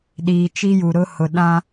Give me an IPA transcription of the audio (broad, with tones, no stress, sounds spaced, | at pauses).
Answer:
ɗ iː˨ t͡ʃ i˦ j u˨ ɾ ʊ˦ h ʊ˨ ɗ ã˦